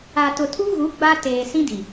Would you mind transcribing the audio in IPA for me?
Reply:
a˨ t ʊ˨ tʰ u˦ ɣ u˨˦ ɡ͡b a˦ t eː˨ s ĩ˦ d i˨

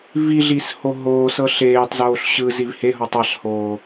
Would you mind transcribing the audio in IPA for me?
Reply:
v i ɮ i s h o ɦ oː s ɤ ɬ eː tˤ z oː ɬ ɕ ɯ z i v h e ɦ ɔ tˤ a ɬ h oː

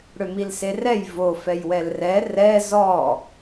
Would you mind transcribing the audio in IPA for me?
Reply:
ɽ ʏ m i l s e r ɛ j v o f ɛ j w ɛ l r ɛ r ɛ z ɔ

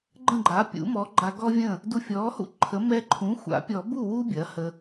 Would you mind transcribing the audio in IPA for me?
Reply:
ɡ͡ǃ ə̃˥˩ ɡ͡ǃ a˩˥ pʲ ṵ˩˥ m ɔ˩˥ ɡ͡ǃ a˧ ɡ ɔ˥ vʲ ə̃˥˩ | d u˧ fʲ ɔ˩˥ h ṵ˥ ǃʰ ə˩˥ m ɛ˧ ǃʰ ũ˩˥ xʷ a̰˨˩˦ pʲ ɔ˨˩˦ b u˥˩ w u˥ bʲ ɐ˩˥ h ə˧

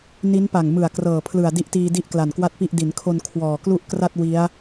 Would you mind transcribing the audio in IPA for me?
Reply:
n i˦˥ n p a˨˩ ŋ m ɯ˨˩ a̯ k r ɤː˨˩ pʰ l ɯ˨˩ a̯ d i˦˥ ʔ t iː˧ d i˥˩ ʔ k l a˨˩ n k w a˥˩ t̚ p i˥˩ ʔ d i˩˦ n kʰ o˧ n kʰ w ɔː˨˩ k l u˥˩ ʔ k r a˥˩ t̚ w i˦˥ a̯

